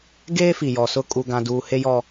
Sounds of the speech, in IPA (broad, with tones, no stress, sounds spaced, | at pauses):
ɡ eː˦ f i˨ j ɔ˨ s ʊ˦ kʼ u˦ ɡ ã˦ d uː˦ h e˦ j ɔ˦